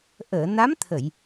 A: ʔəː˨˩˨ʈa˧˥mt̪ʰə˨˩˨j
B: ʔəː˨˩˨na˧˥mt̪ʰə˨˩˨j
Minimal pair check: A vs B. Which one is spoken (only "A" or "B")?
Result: B